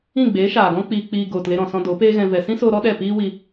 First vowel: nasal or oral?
nasal